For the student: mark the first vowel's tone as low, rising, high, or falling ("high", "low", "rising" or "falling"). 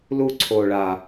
falling